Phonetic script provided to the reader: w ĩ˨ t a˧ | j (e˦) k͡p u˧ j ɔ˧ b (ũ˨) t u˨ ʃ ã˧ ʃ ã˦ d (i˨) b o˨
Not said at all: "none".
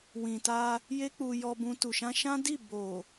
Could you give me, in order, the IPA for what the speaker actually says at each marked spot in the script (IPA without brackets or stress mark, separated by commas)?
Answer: e˦, ũ˧, i˦˨